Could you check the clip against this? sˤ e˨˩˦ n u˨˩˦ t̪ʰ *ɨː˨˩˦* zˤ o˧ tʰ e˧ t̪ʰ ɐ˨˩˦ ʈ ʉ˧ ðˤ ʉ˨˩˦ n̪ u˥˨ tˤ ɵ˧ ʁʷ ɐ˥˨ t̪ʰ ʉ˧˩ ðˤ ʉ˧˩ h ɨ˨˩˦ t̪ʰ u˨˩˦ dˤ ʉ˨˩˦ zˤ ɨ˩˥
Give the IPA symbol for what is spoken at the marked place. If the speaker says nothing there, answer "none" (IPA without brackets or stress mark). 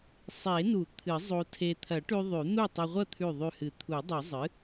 ɨ˨˩˦